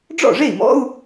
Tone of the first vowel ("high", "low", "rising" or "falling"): falling